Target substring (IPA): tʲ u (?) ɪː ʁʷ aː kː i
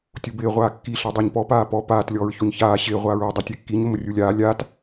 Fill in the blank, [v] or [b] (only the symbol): b